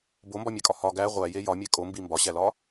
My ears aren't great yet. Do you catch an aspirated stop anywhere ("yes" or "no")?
no